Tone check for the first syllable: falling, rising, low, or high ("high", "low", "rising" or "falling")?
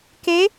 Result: rising